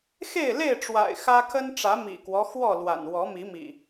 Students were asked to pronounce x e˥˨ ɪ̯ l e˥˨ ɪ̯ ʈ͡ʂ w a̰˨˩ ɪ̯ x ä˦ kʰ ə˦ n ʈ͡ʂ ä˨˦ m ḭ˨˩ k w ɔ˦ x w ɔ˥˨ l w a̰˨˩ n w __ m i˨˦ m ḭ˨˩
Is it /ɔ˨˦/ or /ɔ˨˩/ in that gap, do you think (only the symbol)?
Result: ɔ˨˦